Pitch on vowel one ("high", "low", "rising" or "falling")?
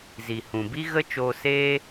low